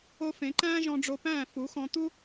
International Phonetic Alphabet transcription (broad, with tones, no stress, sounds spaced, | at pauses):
o˦ f ẽ˨˦ ǃ æ̃ː˦ ʒ ɔ̃˧ ɖ͡ʐ o˧ p æ̃ː˦˨ f u˨˦ x ɔ̃˧ t̪ u˦